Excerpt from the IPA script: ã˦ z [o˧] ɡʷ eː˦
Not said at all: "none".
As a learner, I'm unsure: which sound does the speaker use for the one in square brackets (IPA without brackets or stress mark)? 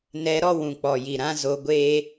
o˧